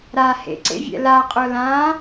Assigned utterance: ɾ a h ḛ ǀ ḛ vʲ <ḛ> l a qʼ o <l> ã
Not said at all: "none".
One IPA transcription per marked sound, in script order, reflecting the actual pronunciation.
ɛ̰, l

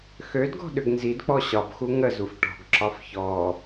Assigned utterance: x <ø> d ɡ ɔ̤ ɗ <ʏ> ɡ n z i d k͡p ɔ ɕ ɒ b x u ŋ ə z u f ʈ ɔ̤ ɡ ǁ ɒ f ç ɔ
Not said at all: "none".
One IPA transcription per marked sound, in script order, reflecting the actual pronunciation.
ø, ʏ

